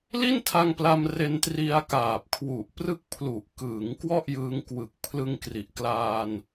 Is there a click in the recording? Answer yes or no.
no